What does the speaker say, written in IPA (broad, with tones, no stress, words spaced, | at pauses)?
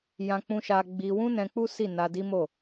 jã˧k͡pũ˧ʃa˧ ɡ͡bi˧wũ˦ nɛ̃˧k͡pu˦ si˦˨na˧di˦mo˦˨